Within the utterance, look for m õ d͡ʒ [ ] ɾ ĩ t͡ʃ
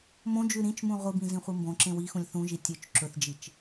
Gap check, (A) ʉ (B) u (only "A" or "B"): A